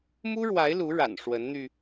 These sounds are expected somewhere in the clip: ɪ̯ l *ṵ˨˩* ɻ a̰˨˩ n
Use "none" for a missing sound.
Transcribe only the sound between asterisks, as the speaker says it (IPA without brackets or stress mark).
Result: u˧˥